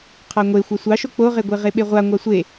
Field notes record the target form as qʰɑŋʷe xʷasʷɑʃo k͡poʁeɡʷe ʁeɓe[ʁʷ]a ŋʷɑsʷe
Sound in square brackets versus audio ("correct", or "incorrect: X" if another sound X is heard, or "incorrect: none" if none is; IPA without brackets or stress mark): correct